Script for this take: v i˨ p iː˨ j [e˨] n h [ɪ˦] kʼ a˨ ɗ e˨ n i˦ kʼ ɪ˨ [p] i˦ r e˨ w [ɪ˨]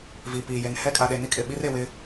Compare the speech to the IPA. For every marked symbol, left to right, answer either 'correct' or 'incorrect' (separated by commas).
correct, incorrect, incorrect, incorrect